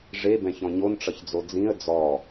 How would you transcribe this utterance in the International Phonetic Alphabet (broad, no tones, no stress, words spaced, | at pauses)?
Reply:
ʐebɛ̃çɔ̃ ɲonʈ͡ʂʌçd͡zo d͡zĩə̯ d͡zɔ